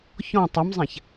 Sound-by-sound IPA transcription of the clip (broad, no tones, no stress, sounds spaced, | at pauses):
ç ɔ̃ tˤ ɘ m zˤ ã ç